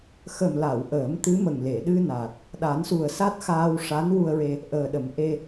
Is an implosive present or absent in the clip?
present